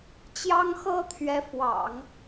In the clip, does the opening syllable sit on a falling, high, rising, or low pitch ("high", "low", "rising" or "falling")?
high